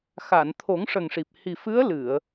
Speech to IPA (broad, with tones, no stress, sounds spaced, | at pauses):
x a˨˩˨ n t̪ʰ o˨˩˦ ŋ ʂ ə˨˩ ŋ ʂ i˨˩ p̚ h i˨˩ f ɨ˧˥ ə̯ l ɨ˨˩˨ ə̯